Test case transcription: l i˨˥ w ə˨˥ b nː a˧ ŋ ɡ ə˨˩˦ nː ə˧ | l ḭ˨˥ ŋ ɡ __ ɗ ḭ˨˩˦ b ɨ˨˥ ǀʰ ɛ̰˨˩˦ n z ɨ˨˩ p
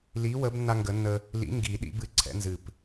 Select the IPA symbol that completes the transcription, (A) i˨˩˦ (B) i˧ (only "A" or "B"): A